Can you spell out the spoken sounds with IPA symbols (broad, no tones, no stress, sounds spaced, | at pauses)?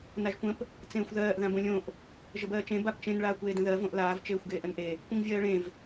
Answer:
n a ʒ kʷ ə̃ p | t͡s ẽː xʷ ð ɜː ʔ ð ã b õ lʲ õ ʔ | ʒ ə b ɜː t͡ʃ ẽ b a p t͡ʃ ẽ n ɭ aː kʷ eː d ə̃ ð ɜ v õ ʔ l aː v t͡ʃ eː xʷ ɡ eː ʔ ə n ʔ e | kʷ ə̃ ŋ vʲ ɜː ɭ ẽ v